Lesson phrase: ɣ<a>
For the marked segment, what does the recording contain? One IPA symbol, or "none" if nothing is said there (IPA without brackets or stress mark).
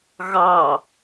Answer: ɑ